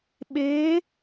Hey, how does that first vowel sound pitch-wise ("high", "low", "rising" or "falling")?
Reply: rising